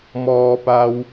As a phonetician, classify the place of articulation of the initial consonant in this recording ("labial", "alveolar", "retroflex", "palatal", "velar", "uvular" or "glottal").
labial